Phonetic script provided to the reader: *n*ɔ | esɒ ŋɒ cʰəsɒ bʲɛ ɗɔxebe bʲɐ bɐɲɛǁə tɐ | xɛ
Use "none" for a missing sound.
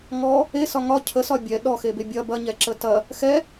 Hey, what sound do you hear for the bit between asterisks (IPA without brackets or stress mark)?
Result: ŋ